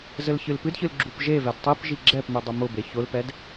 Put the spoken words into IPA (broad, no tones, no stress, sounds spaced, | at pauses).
z ɘ l ç ɨ l p ɨ d ç ɨ l ɡ͡ǁ u p ʒ e v ɛ d tˤ i p ʒ i ɡ͡ǁ ɛ p m ɨ dˤ ʊ m ʊ b e ç ʊ l p ɛ d